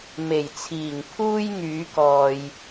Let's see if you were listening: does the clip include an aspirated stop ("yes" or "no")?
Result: yes